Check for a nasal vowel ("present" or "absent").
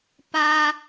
absent